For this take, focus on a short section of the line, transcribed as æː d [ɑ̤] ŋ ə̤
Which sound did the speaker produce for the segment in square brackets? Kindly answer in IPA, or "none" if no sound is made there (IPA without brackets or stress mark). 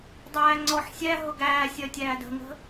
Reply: ə̤